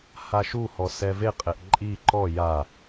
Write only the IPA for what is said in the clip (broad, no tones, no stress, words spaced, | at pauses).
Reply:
haʃuhɔ sɛveqʼeʔ ǃʼi ǃɔ ja